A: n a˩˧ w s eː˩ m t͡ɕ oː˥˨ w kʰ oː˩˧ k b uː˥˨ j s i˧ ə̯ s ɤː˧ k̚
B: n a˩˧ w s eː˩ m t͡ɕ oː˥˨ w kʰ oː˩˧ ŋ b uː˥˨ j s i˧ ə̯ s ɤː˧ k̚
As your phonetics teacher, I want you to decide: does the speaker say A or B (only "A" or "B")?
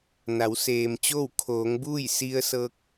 B